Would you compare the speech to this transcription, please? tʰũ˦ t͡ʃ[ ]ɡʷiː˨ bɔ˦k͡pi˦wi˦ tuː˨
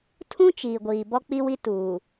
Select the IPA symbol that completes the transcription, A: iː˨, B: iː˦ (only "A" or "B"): A